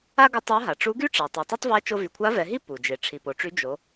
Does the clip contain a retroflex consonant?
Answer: yes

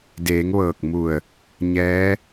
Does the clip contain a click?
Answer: no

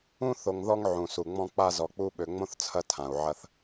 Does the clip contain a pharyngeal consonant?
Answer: yes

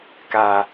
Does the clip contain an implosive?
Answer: no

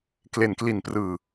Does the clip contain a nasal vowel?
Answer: no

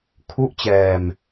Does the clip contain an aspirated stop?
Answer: yes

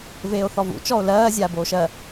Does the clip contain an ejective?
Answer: no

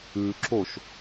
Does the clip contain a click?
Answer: yes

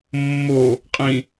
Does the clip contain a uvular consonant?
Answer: yes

